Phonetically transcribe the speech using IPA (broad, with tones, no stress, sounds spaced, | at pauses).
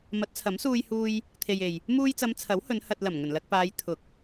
m ɐ˨˥ t̚ t͡sʰ ɐ˨˥ m s uː˧ j h uː˧ j | t̪ʰ e˨ j e˨ j | m uː˧ j t͡s ɐ˨˧ m t͡sʰ ɐ˨˥ w h ɵ˨˧ n h ɐ˨ t̚ l ɐ˨˩ m ŋ ɵ˨˩ n l ɐ˨ k̚ p aː˨˧ j t̪ʰ ʊ˨˥ k̚